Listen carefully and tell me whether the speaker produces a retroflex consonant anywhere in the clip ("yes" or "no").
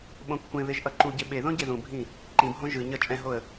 no